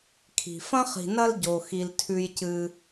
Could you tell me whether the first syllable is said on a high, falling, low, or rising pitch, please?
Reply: low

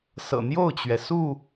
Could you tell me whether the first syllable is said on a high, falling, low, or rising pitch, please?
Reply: low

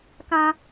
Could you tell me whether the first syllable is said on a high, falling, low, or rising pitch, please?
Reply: high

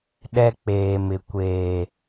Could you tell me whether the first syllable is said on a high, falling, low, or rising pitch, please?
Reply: high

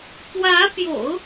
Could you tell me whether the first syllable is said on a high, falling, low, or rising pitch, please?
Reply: rising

